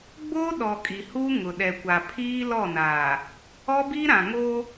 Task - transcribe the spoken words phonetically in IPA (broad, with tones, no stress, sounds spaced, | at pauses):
ɡ͡b o˦ ɗ ɔ˨ kʼ i˨ h uː˦ ŋ ʊ˨ ɗ ɛ˨ kʷ a˨ pʰ iː˦ l ɔ˦˨ n aː˨ | ɔ˦ b i˦ ɾ ã˨ ŋ o˦